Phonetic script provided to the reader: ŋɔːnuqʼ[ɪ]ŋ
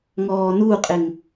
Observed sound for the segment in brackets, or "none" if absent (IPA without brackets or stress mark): ɪ